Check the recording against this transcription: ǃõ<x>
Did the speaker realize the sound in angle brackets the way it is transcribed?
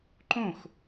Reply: yes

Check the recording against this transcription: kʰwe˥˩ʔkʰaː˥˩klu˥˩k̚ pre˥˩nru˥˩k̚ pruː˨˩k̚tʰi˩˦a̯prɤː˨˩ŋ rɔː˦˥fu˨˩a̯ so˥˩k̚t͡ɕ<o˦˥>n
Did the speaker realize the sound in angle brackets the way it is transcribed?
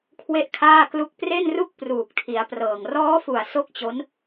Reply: yes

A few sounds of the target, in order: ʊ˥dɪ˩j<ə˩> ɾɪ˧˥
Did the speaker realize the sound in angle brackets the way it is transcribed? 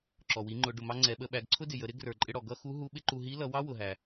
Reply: no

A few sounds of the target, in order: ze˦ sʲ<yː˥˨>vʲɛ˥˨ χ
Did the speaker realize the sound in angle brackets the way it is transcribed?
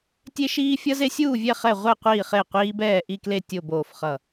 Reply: no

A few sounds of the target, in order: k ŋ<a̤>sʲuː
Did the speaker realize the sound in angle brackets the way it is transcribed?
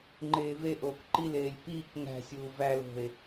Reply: no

